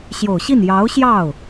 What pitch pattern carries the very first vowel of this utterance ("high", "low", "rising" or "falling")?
low